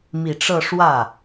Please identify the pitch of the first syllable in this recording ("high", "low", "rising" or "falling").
low